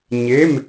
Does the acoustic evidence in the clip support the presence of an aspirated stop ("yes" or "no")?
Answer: no